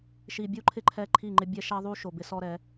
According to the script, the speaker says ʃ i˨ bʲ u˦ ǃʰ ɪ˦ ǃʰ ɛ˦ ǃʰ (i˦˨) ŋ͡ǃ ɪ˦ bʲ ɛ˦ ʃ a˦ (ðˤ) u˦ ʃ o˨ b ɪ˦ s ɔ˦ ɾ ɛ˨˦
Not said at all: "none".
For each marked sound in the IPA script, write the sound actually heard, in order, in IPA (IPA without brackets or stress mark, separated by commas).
i˦˨, ðˤ